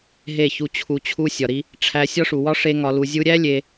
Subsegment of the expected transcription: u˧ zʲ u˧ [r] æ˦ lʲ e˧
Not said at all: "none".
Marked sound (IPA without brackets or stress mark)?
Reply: ɾʲ